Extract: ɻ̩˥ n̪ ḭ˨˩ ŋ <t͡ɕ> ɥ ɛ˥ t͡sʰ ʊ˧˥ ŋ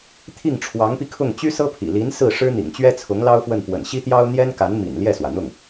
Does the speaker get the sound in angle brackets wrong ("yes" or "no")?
no